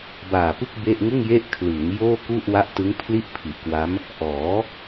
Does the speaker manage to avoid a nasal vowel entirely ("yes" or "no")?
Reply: yes